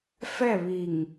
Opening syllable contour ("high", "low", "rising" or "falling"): falling